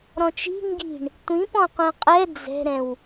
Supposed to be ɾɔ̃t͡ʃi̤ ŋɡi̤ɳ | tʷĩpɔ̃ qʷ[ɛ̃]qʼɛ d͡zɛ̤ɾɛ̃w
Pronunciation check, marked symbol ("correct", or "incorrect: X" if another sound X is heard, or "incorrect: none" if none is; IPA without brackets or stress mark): correct